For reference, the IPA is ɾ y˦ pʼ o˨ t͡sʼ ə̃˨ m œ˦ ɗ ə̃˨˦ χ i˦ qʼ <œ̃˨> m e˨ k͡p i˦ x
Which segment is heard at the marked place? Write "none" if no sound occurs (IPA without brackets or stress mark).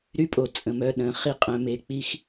œ̃˨